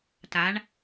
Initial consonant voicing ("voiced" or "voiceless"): voiceless